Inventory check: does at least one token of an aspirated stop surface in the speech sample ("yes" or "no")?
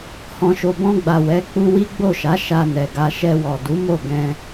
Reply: no